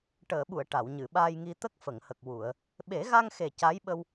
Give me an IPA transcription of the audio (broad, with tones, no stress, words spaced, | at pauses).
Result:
ʈəː˨˩˨ɓu˨˩˨ə̯ ʈa˨˩˨wɲɨ˨˩˨ɓaː˧jŋi˧ t̪ə˦˥k̚fə˨˩˨ŋhə˨˩k̚ wu˨˩˨ə̯ | ɓe˨˩˦ɣa˧ŋxe˨˩ ca˧˥jɓə˧w